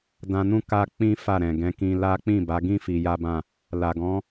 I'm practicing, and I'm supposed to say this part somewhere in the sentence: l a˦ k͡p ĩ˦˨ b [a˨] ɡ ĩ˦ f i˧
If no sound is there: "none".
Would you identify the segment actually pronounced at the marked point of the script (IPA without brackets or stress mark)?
a˨˦